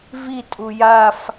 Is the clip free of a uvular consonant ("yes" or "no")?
yes